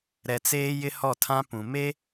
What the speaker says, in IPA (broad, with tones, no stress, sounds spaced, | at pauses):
ɾ ɛ˨ t͡s eː˦ j ɪ˦ h ɔ˦˨ tʰ ã˦ p ũ˨ m e˦